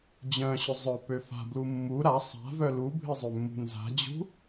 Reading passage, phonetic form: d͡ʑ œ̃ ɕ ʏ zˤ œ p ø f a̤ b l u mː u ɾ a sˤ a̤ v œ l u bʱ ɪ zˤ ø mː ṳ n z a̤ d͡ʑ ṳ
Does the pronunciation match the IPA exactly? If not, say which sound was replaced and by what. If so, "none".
none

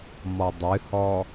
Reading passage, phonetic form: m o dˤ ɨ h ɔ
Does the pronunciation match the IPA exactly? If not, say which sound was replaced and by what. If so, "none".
o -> ɔ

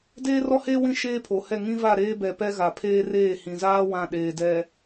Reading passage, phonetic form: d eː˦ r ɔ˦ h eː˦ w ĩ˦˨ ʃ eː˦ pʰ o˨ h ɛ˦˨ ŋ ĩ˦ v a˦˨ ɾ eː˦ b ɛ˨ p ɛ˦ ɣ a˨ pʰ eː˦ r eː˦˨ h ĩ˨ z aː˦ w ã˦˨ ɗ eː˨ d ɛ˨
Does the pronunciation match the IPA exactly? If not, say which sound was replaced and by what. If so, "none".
none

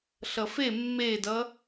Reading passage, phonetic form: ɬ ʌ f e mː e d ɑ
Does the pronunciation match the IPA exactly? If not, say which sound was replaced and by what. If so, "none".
ɑ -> ʌ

